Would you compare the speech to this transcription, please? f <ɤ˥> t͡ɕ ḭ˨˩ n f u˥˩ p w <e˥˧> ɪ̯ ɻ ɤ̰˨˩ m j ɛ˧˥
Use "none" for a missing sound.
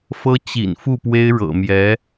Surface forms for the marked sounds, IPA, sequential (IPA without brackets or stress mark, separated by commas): ɤ˥, e˥